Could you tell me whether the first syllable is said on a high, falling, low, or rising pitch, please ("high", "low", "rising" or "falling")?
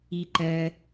low